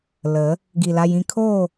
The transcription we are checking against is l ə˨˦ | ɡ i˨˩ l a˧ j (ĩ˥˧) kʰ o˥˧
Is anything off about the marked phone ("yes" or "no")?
no